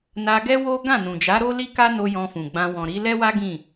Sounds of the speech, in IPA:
n a˧ ɡ ɛ˦ w o˦ ɡ ã˦˨ n ũ˨ d͡ʒ a˨˦ ɾ o˦ l i˦ k a˦ n o˧ j ɔ̃˧ f ũ˨ ɡ͡b ã˧ w ɔ̃˨ ɾ i˨˦ l ɛ˦ w a˦ ɡ ĩ˦˨

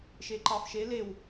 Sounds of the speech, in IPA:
ʃ e ǃ ɑ f ʃ e l e w

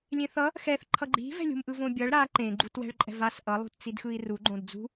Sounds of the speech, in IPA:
lʲ ẽ θ ʌ | x ɛ θ ǃʰ ʌ ɡ͡ǃ i̤ v ɛ̤ lʲ ṳ m ʔ ɯ v õ bʲ ʌ ɭ ɾ a ǃ ẽ ɡ͡ǃ u t w ɛ̤ ɭ ǃʼ ɛ̤ v a s ʔ ʌ lˠ ṳ t t͡s i d x ɯ i̯ r u ɡ͡ǃ õ d d͡z ṳ

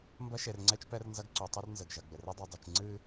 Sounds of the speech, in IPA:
m b ɐ˦ ʃ e˨ r ŋ͡ǀ ɛ˦ t͡ʃ p ɛ˦ r n z ɐ˦ ɡ ǀ o˨ tˤ u˦ r n z ɘ˨ ɡ ʒ ɐ˨ ɡ͡b ɘ˨ r ɨ˦ dˤ ɨ˨ dˤ i˨ t͡ʃ ŋ͡ǀ ɨ˦

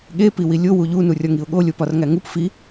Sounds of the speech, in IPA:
ɠ e p i w i lʲ o w u ʎ u n u rʲ ɒ ŋ i ʊ̯ ɠ o lʲ o p ɒ r ŋ æ ŋ u p f i

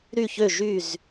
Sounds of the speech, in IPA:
ɾ y˧˩ ç ø˧˩ ʒ y˧˩ z

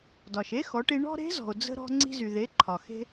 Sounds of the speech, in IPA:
d ɒ˩ ʃ e˥ x ɔ˩˧ ʈ i˧ ɳ ɔ̤˥ ɾ e̤˧˥ z ɔ̤˩ o̯ d͡z ə̤˧ ɾ ɔ̤˧ ŋ͡ǀ i̤˧ z y˩ ð e˩˧ ǃʰ ɒ˩ x e̤˧

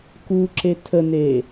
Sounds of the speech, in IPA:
k u ǁ e tʰ ə n e

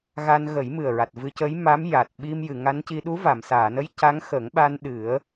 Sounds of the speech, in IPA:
ɣ a˧ n ɣ ə˨˩˦ j m ɨ˨˩ ə̯ ɹ a˨˩ t̚ v ɨ˧ c ə˧˥ j m a˧˥ m j a˨˩ t̚ ɓ i˧ m j ɨ˨˩˨ ŋ a˧˥ n c i˧ ɗ u˧˥ v a˨˩˨ m s aː˨˩˨ n ə˧˥ j c a˧˥ ŋ x ə˨˩˦ ŋ ɓ a˧ n ɗ ɨ˨˩˦ ə̯

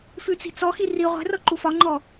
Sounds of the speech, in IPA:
f ʉ t͡s i̤ t͡s ɔ x i r i ʁʷ ɛ̤ r ɤ ǃ u f ɒ ŋ͡ǃ ɔ

